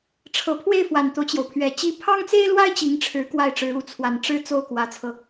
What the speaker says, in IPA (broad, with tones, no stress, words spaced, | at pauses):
ʈ͡ʂʰɤ˨˩pʰwe˥˩ɪ̯ fwa˨˩nt̪o˦ʊ̯t͡ɕjo˩ʊ̯pʰɥɛ˨˩ t͡ɕi˧˥pʰɑ˥ŋt͡se˥ɪ̯lwa˥ɪ̯ t͡ɕi˧˥ŋʈ͡ʂʰɻ̩˧˥ kwa˥˩ɪ̯ʈ͡ʂɻ̩˧˥u˧˥ t͡sʰwa˨˩nʈ͡ʂɻ̩˥ t͡so˥˩ʊ̯kwä˧˥t͡sʰɤ˧